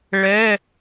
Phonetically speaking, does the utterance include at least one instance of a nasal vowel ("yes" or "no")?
no